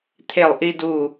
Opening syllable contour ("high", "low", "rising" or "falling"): falling